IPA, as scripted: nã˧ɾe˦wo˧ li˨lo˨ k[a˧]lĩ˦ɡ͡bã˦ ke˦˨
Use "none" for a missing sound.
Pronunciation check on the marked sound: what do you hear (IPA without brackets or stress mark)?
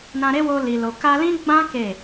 a˧